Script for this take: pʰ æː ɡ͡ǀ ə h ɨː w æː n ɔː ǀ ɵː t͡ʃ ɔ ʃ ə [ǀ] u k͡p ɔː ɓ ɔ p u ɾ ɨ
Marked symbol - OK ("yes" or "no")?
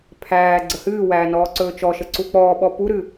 yes